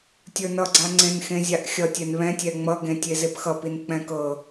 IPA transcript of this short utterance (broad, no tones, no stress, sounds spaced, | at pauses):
tʲ ə˞ n ʌ ɡ͡ǀ a ŋ͡ǀ ẽ n x ẽ zʲ a ʔ xʲ ʌ tʲ ɛ n β ɛ̃ tʲ ɛ ŋ͡m ʌ ɡ ẽ tʲ e z e p x ʌ p i n k͡p ɛ̃ k ɤ